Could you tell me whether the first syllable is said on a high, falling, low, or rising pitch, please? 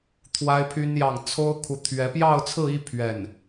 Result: high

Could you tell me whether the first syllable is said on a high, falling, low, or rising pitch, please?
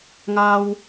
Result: high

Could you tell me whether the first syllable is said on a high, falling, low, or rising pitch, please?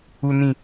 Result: low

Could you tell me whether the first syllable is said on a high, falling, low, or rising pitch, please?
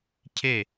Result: falling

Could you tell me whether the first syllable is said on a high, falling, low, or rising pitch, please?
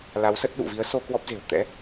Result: rising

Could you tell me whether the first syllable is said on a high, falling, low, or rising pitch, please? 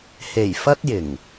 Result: low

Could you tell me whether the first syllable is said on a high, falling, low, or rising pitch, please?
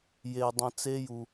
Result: low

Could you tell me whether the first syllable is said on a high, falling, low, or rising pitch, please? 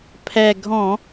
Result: low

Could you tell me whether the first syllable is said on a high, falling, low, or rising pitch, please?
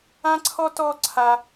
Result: high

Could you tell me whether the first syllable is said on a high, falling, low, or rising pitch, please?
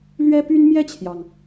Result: high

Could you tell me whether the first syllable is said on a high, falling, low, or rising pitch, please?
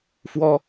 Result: high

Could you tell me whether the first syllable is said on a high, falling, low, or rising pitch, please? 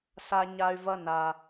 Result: high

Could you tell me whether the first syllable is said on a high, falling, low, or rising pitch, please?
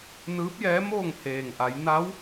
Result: rising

